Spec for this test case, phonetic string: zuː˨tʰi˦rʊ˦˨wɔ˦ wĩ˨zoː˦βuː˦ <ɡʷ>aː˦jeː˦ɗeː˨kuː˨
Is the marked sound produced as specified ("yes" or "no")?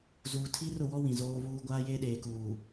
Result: yes